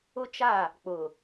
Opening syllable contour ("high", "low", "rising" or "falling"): high